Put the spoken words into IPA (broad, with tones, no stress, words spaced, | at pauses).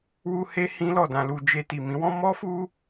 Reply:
wu˦he˦ hĩ˦lɔ˦˨dã˧lu˧ d͡ʒe˧ti˨mĩ˨˦wɔ̃˦ mɔ˦fu˦